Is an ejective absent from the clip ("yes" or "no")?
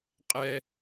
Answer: no